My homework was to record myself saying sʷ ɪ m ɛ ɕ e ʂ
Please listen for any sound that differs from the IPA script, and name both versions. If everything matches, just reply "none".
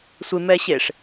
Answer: none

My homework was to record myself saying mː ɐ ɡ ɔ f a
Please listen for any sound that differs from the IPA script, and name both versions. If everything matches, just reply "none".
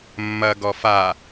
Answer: none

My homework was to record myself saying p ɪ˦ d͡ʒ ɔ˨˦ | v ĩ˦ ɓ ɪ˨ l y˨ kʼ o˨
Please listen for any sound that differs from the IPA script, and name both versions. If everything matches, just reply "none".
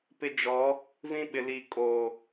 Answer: y˨ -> i˨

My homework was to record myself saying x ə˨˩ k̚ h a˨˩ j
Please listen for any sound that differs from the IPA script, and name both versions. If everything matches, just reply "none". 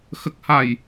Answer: none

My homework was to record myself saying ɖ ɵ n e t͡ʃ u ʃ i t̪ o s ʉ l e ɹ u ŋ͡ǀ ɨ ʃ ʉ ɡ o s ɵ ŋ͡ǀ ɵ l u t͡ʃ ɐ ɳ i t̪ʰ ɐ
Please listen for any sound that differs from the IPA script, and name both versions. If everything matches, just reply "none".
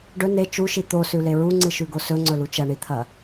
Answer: none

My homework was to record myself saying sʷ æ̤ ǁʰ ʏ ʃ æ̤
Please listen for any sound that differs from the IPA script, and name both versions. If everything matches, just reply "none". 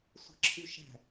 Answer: ʏ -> y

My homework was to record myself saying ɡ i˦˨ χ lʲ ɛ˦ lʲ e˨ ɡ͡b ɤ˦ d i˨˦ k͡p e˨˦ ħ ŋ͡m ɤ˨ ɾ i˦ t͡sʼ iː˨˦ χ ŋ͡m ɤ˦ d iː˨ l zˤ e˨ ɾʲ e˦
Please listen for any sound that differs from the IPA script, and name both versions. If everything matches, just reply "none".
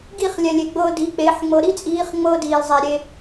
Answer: ɛ˦ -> ɛ˨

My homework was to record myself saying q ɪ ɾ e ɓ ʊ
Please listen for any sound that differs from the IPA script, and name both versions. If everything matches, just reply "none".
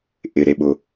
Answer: q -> ʔ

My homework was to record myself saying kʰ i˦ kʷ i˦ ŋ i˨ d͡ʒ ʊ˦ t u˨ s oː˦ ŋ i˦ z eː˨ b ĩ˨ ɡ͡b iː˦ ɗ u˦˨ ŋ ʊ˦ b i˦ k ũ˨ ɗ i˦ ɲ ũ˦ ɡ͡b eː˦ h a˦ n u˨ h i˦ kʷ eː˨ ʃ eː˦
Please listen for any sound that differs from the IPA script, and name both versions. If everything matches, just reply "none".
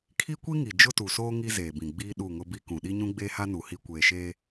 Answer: none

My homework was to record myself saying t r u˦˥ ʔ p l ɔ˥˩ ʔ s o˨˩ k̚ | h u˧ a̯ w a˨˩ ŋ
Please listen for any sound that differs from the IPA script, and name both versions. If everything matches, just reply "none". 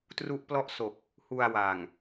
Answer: none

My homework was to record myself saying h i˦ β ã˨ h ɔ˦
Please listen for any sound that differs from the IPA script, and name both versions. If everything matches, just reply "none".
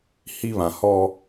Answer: none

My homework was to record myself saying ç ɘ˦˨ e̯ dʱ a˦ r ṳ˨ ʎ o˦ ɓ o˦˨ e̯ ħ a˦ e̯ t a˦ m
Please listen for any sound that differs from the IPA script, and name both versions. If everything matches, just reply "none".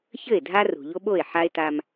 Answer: none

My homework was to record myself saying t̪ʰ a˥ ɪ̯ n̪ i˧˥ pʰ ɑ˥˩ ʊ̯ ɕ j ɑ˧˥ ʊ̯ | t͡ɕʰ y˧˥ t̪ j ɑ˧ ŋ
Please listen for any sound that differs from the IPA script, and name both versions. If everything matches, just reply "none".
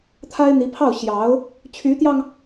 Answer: none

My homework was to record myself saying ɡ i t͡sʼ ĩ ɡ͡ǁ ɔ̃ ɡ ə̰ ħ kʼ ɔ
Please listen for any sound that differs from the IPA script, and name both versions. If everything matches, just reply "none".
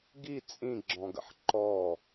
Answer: kʼ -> ǃ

